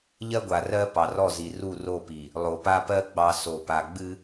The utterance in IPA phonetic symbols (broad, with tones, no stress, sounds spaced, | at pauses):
ʎ ɜ˦ ɡʷ a˨ r ɜ˦ p ɑ˨ r ɔ˦˨ z i˨ r u˦˨ r o˦˨ p i˨ | lˠ o˨ p a˦ p ɜ˦ ɡ͡b ɑ˨ s o˨ p a˨ ɡ͡b ɨ˦